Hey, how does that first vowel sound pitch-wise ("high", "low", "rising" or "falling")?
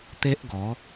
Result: high